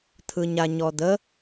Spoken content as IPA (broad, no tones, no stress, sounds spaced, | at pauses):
t̪ʰ ɯ ɲ a ɲ ɔ d̪ ə